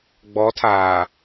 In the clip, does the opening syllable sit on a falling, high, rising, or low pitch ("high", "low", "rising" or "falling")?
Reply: rising